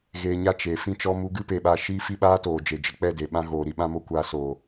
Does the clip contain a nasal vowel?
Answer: yes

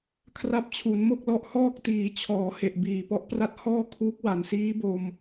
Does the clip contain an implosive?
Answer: no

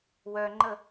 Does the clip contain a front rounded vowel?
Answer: yes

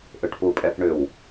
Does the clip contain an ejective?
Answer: yes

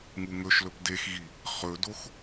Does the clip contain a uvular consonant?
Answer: yes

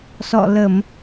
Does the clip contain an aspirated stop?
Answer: no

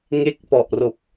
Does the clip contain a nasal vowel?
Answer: no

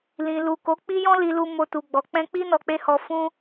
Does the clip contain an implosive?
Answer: no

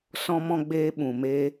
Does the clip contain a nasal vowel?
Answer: yes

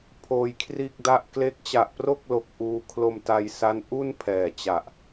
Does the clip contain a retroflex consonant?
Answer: no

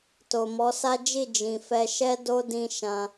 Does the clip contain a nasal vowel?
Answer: yes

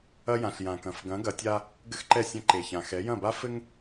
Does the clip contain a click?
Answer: yes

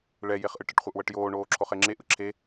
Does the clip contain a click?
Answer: yes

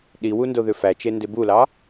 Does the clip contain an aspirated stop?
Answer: no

